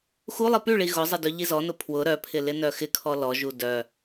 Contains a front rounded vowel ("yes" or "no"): yes